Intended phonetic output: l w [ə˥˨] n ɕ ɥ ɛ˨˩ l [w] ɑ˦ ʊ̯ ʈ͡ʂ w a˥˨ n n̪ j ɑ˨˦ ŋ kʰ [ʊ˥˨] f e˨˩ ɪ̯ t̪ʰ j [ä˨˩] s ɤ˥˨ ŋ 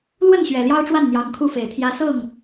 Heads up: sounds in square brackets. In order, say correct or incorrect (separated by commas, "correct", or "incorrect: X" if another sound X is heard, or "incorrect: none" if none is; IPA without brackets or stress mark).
correct, incorrect: j, incorrect: u˥˨, incorrect: ä˦